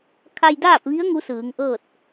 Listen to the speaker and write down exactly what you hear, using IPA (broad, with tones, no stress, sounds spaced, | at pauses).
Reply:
kʰ a˧ j d aː˥˨ p̚ ʋ i˧˥ ə̯ ŋ u˧˥ s ɯː˩˧ ŋ ʔ ɤː˥˨ t̚